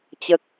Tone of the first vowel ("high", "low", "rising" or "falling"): high